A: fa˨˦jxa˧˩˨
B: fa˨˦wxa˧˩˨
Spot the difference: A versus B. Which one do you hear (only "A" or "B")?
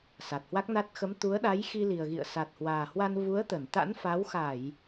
B